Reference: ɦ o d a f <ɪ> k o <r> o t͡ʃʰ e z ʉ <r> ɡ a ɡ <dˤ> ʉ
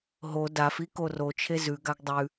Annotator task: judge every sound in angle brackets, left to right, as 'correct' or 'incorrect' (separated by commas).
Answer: incorrect, correct, incorrect, correct